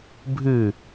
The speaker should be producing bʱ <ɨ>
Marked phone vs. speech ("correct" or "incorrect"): correct